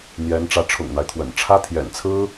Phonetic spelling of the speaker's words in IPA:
n̪ j ɛ˧˥ n ʈ͡ʂ ä˧˥ ʈ͡ʂʰ ʊ̰˨˩ ŋ n̪ a˦ ɪ̯ t̪ʰ w ə̰˨˩ n ʈ͡ʂʰ ä˥ t̪ʰ j ɛ̰˨˩ n t͡sʰ ɹ̩˥

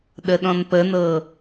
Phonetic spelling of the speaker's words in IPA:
ɗ ə ɗ ɔ̃ n p ə n ɤ

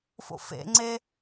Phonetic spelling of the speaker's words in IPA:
f o̰ f ḛ ŋ͡ǀ e

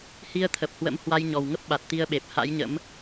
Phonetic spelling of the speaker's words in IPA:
h i˧ ə̯ t̪ʰ ə˨˩ p̚ h w ə̰˧˥ m h w a˧ j ɲ ɔ˨˩ w ŋ ə˦˥ p̚ ɓ a˨˩ t̚ t̪ i˧ ə̯ ɓ e˨˩ p̚ h a̰˧˥ j ɲ ə̰˧˥ m

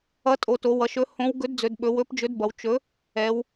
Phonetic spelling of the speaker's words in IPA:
ʌ˨˥ tʼ o˩˧ t o˩˧ w ʌ˩˧ ʃ ɵ˨˥ h õ˨˥ w ɡ ɵ˨˥ d d͡z ɵ˩˧ d ɓ ɵ˩˧ w ɵ˨˥ p d͡ʒ ɵ˨˥ d b ʌ˩˧ w t͡ʃ ɵ˨˥ | ɛ˩˧ w

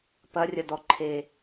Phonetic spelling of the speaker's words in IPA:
p ɐ rʲ ɐ d ɔ ǃʰ eː

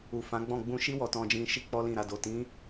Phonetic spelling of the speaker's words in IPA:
u˨ f ã˨˦ ɡ͡b ɔ̃˦˨ ɡ͡b ũ˧ ʃ i˦ w ɔ˧ t ɔ̃˧ d͡ʒ ĩ˧ ʃ i˦ k͡p ɔ˦ l ĩ˦˨ ɾ a˧ d o˨ t ĩ˨˦

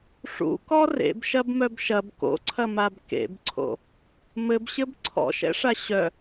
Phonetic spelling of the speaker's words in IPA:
ʂ ṵ k ɔ r ḛ b ʃ ɐ b m œ b ʃ ɐ b k o̰ ǀʰ ɐ m a b k ḛ b ǀʰ o̰ | m ɘ b ɕ ɘ b ǀʰ ɔ̰ ʃ ɛ̰ ʂ a ɕ œ

